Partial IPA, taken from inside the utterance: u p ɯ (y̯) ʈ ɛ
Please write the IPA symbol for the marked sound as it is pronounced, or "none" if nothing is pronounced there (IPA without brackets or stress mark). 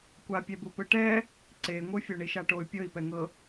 none